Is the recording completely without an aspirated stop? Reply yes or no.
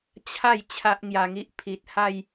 no